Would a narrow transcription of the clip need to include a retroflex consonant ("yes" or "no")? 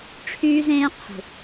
yes